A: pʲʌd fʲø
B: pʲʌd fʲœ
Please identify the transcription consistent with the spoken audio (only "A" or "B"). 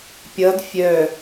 B